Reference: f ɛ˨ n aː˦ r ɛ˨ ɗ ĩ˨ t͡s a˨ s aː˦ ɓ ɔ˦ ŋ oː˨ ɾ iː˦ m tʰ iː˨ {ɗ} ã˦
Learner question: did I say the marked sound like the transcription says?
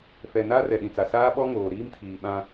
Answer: no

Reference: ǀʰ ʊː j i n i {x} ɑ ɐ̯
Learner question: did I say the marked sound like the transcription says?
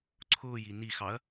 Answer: yes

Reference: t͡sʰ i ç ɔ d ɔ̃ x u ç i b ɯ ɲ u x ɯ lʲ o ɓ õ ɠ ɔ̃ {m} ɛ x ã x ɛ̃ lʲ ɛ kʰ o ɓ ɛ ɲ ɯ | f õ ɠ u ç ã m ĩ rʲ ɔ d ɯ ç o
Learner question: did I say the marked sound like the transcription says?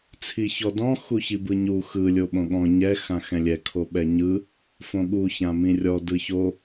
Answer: no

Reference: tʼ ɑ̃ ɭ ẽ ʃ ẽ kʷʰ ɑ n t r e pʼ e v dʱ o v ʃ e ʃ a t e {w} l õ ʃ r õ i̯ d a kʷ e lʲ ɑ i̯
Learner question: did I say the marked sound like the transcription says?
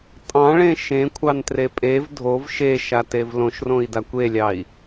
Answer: no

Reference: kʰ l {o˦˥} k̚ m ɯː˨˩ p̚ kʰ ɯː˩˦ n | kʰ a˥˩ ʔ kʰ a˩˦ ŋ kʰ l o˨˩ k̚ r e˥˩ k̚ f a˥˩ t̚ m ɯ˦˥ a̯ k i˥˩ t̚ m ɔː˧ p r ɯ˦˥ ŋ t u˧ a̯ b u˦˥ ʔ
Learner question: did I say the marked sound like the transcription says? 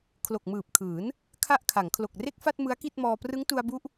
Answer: no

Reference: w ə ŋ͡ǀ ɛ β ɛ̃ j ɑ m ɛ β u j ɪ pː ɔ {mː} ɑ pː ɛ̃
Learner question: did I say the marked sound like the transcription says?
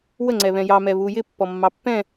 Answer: yes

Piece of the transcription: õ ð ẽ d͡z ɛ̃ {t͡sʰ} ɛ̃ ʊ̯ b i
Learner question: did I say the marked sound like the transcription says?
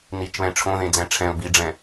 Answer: no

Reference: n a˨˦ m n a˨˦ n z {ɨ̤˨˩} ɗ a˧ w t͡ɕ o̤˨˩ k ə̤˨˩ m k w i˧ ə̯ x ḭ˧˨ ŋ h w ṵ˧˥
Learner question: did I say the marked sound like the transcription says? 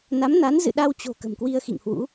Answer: no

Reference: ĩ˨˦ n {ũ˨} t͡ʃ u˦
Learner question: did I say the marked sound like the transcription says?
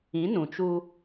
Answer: yes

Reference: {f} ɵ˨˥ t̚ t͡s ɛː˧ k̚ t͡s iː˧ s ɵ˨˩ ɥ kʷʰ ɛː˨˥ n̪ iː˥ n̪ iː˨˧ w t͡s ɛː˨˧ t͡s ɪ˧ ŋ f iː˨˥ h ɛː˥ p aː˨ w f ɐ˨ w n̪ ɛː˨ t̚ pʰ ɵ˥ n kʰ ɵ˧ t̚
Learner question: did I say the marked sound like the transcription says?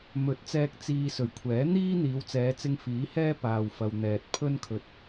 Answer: no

